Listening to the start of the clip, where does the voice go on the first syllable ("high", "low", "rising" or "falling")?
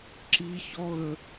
high